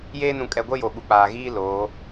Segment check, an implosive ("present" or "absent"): present